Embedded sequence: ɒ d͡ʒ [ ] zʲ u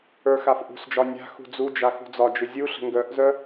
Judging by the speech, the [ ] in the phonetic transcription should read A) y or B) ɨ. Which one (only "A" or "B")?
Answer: B